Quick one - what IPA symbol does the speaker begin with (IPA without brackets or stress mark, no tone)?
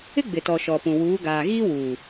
ɪ